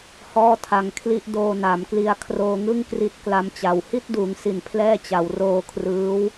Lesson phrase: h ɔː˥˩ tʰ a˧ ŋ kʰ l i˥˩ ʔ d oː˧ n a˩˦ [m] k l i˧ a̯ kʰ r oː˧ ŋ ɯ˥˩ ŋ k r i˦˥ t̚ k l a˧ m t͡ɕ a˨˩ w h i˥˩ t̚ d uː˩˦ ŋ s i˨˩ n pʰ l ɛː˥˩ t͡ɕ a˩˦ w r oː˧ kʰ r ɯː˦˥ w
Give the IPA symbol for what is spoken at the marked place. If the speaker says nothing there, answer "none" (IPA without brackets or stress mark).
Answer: m